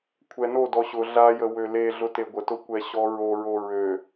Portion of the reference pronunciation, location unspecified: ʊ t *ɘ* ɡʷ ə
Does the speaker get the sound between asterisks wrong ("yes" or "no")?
yes